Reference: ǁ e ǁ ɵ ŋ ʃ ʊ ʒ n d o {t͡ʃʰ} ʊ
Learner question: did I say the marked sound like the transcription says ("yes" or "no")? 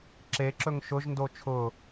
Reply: yes